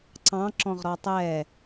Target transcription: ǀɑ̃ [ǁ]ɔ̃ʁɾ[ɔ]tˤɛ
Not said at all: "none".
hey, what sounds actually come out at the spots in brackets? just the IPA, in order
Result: ǁ, ɔ

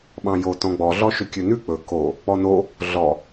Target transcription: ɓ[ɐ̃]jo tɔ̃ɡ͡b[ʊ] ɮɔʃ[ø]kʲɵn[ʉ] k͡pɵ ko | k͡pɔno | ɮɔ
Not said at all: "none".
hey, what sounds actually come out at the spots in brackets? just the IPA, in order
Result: ɑ̃, ɔ, ø, ʉ

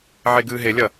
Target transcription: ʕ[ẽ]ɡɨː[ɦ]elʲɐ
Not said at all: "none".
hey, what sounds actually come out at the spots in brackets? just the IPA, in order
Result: e, ɦ

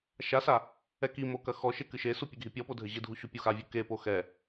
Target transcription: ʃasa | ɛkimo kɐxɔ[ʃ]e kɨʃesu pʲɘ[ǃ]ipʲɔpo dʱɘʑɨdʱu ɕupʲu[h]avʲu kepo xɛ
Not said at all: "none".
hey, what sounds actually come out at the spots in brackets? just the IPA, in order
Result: ʃ, ɡʱ, x

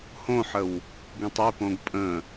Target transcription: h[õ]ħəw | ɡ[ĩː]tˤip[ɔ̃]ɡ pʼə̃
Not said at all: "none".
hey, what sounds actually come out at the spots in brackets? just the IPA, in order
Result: õ, ĩ, õ

